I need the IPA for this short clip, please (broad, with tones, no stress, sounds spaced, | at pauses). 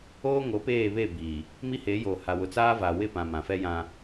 oː˦ ŋ o˨˦ p eː˦˨ β e˦˨ b iː˨ | m i˦ h e˨˦ j oː˨ h a˨ w ʊ˨ t͡s aː˦ v a˨ w ɪ˦˨ p ã˨ m ã˨ f ɛ˦ j ã˦